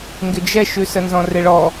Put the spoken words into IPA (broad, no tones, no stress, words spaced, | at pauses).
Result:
ŋɡɪd͡ʒɛʃʉsə nzɔ̃reɭɔ